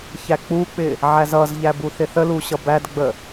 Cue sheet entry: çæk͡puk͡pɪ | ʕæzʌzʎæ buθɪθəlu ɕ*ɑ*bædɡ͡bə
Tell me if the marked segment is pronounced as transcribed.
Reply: no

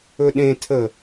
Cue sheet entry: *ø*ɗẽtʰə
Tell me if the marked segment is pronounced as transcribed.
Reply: no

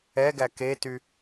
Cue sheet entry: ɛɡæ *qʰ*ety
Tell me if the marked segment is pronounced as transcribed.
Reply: no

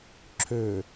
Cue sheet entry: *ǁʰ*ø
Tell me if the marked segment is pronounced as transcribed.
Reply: yes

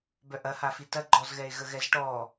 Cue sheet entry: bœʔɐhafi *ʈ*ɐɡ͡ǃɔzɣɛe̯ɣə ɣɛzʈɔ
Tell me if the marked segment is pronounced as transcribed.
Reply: no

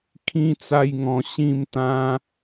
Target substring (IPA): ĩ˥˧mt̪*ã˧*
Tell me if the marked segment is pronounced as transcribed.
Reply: no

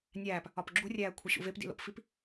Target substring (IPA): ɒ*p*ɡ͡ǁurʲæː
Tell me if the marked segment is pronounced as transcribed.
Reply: yes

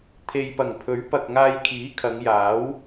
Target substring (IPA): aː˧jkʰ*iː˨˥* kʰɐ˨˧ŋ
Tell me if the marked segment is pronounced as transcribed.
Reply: yes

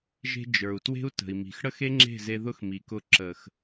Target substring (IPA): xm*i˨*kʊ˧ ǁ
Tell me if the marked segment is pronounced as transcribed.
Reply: yes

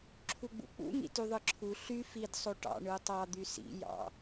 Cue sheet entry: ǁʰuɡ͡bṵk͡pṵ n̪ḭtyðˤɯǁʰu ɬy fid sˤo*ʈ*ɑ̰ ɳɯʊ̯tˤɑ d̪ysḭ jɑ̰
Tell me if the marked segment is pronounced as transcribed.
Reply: yes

